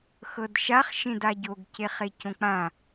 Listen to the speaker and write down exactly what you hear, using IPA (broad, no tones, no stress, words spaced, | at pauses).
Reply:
xɤdʃaχ ʃẽdaɟoɡce χecõk͡pã